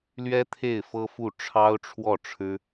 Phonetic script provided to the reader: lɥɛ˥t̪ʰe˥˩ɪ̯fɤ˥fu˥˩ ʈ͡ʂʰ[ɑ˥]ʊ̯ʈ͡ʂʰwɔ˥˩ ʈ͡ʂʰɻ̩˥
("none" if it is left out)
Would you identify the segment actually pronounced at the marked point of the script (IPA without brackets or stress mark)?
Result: ɑ˥